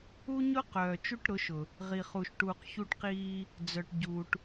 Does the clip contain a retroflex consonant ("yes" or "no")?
yes